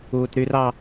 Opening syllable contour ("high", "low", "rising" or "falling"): high